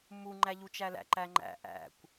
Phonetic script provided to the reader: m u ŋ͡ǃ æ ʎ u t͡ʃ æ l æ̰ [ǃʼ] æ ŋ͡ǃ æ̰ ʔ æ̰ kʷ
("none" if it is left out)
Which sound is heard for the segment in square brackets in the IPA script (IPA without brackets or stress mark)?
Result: ǃ